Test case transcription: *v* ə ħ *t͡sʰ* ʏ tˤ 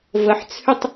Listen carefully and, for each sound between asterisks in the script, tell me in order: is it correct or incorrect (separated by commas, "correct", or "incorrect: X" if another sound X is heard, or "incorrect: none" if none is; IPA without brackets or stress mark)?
correct, correct